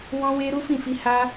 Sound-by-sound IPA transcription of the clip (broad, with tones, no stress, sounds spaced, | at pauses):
w ɔ̃˦ w e˦ ɾ u˦ f ĩ˦˨ f i˧ h a˦